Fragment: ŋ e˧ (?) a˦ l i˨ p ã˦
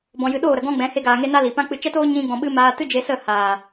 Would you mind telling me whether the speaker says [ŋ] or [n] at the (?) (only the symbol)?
n